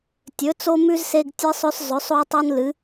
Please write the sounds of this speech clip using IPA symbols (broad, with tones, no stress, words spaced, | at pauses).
tʲɵ˧˥t͡so˥mʉ˥z se˥ɡtʲɨ˥sˤɵ˥s zˤɵ˧˥sˤo˥tˤo˥n lɨ˧˥